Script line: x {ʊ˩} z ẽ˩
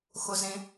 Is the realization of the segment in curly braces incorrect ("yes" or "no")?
no